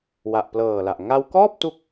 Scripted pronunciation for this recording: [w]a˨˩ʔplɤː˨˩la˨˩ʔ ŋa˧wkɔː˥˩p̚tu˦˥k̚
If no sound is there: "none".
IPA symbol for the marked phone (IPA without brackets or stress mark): w